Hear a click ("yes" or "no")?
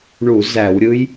no